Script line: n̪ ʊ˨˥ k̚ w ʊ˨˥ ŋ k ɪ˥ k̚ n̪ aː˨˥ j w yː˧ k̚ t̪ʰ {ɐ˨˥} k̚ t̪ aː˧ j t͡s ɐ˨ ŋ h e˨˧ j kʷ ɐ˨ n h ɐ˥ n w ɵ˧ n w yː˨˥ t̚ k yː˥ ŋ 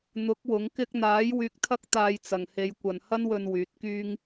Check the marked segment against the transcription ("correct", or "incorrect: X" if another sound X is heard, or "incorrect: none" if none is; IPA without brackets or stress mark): incorrect: ɐ˥